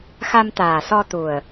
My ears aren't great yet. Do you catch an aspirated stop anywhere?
no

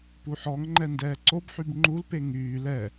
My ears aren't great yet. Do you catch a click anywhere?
yes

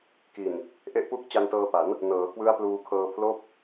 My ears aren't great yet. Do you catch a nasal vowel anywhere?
no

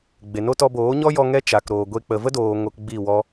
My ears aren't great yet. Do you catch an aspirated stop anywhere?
no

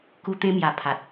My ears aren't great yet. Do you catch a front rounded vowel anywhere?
no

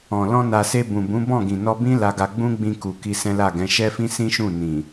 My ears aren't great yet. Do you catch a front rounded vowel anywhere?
no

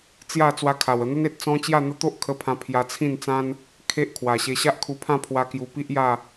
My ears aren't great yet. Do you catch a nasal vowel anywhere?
yes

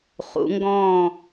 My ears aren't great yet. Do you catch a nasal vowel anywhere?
yes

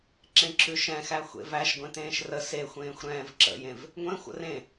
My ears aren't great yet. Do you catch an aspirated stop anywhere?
no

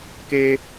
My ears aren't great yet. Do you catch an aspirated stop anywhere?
no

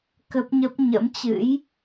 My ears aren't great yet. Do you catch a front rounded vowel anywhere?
no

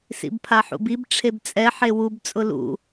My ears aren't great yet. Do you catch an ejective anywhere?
yes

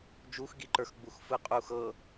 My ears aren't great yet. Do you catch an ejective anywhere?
yes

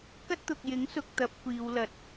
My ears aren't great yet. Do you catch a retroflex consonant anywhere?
no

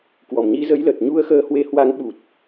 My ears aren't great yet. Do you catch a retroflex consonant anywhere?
no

